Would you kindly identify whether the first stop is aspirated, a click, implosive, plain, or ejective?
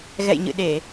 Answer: implosive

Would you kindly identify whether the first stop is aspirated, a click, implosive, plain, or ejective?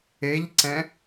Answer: click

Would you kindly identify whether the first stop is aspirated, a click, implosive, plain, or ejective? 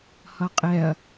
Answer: ejective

